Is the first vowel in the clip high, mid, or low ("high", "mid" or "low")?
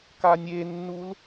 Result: low